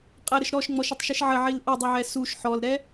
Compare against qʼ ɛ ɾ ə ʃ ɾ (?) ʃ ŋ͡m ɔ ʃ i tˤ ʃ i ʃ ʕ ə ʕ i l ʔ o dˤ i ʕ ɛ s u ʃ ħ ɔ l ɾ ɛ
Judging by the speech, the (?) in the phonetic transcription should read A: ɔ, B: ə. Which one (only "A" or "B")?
A